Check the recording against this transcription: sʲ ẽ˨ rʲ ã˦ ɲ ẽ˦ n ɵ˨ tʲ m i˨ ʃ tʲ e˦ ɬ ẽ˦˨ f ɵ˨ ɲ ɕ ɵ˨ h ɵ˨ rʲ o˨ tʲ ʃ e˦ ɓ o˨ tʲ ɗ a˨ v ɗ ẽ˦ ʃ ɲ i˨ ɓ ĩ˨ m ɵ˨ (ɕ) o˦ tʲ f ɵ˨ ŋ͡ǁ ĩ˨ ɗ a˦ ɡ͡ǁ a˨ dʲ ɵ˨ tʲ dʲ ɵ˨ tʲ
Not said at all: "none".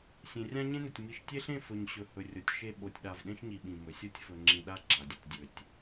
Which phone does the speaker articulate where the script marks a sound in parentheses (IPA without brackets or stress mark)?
sʲ